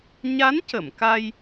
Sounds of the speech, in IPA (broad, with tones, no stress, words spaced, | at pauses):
ɲa˧˥ncə˨˩˨mka˧j